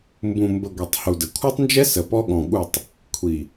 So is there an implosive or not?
yes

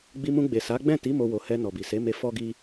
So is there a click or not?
no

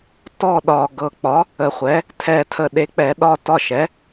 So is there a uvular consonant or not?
yes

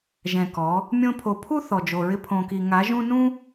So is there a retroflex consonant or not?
no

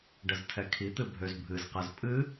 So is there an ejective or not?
yes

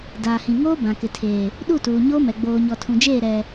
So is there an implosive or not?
yes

